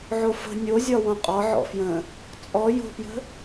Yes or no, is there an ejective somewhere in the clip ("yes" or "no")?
yes